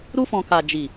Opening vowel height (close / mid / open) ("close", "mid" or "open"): close